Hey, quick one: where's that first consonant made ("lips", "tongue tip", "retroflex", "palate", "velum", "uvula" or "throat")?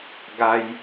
velum